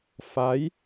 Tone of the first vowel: rising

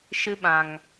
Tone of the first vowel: high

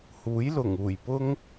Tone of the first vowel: rising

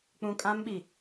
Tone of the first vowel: low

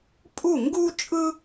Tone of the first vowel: falling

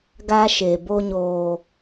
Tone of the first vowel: high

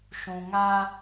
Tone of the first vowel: low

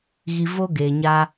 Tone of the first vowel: low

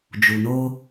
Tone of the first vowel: low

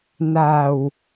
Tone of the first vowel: low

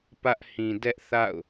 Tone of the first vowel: high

